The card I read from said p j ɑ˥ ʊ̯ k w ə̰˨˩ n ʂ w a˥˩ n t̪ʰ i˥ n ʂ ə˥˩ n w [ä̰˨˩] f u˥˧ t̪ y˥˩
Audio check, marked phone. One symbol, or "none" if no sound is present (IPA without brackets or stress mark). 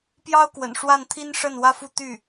ä˥